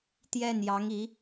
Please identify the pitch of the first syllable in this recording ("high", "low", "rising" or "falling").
falling